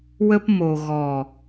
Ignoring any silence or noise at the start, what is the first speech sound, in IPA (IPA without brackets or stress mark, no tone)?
w